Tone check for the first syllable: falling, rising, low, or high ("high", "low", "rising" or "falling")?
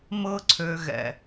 high